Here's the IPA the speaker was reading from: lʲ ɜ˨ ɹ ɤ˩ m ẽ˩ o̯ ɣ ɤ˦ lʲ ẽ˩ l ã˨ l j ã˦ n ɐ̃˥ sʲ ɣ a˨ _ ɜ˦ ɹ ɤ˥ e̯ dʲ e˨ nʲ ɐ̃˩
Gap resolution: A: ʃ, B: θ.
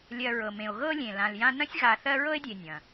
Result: B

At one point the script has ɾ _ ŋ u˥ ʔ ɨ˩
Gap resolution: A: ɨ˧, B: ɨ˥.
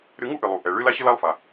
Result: A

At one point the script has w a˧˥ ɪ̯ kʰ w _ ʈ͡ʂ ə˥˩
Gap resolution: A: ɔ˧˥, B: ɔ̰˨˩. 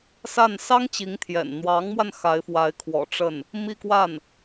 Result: B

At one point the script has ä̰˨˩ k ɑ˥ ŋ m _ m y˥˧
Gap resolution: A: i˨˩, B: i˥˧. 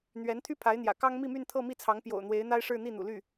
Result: B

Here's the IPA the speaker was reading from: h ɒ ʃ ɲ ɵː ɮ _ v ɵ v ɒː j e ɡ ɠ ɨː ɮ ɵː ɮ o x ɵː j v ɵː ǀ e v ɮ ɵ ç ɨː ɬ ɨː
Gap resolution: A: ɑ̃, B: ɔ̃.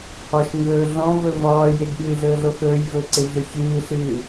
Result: B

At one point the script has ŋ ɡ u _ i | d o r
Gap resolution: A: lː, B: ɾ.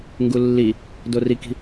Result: A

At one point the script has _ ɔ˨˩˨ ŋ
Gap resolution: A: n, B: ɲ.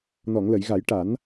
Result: A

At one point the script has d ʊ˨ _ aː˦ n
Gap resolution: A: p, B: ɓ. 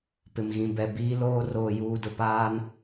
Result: A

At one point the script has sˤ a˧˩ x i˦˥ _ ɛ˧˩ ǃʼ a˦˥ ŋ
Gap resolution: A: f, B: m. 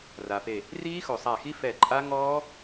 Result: A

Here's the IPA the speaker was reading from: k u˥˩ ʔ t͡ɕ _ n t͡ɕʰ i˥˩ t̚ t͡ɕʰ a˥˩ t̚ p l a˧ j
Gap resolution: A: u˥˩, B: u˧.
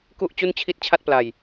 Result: A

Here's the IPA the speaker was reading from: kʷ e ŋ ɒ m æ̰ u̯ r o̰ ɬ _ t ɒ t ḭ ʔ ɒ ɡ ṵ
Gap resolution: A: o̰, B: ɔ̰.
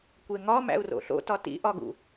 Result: A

